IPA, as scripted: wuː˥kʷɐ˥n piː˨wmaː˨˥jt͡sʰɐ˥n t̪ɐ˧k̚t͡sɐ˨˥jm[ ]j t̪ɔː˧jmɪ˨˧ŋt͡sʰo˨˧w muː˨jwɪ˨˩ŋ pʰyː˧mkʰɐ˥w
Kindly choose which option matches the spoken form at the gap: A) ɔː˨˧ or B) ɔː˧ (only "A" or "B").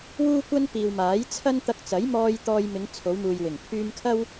B